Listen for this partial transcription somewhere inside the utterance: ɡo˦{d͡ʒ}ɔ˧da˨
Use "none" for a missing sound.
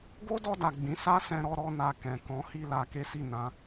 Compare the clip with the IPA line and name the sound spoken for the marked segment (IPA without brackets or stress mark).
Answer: d